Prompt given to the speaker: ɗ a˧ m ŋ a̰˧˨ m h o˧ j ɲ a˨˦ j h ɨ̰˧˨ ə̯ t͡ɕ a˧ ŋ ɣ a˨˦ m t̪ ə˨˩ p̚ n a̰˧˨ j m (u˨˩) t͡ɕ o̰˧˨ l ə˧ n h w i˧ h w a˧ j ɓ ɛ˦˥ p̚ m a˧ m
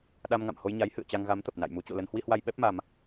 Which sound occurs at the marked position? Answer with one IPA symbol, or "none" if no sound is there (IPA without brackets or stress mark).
u˨˦